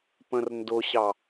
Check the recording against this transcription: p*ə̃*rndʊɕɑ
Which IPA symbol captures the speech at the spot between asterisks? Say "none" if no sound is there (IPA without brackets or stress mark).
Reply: ə̃